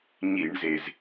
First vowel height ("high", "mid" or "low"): high